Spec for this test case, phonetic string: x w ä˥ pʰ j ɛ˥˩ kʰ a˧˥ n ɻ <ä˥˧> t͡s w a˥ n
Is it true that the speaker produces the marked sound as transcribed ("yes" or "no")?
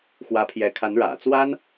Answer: no